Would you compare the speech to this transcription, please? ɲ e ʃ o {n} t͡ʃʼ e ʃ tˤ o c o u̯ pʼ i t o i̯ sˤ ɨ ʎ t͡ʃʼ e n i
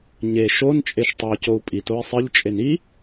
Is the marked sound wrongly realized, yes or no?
no